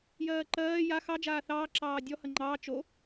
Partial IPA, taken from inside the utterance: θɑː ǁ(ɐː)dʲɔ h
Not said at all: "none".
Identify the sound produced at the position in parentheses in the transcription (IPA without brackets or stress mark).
ɑː